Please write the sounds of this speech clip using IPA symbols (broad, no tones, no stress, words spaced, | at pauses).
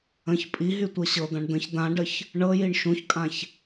ə̃ç pʼiɦy tʷɤɕɤd̪ãɳ d̪ə̃ç d̪ãɖəç | ɳɤjiɳ ʃũçkʼãç